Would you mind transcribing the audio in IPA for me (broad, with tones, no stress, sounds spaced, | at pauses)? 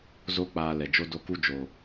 z o˦ k͡p aː˧ l ɛ˨ d͡ʒ o˦ d o˦ k u˦ d͡ʒ oː˨